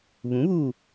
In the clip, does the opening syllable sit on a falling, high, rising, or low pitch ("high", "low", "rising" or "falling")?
rising